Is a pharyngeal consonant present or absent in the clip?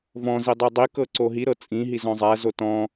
absent